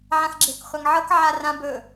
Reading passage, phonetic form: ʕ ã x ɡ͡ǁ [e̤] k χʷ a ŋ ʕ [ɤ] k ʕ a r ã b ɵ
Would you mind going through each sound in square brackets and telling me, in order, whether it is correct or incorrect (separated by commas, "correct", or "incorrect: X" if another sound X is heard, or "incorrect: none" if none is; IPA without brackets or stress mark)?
correct, correct